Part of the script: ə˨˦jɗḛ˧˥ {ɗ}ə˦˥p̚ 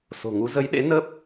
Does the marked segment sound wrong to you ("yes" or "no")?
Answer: yes